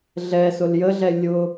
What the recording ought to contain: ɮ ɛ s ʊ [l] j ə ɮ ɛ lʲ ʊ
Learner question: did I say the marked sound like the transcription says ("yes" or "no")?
yes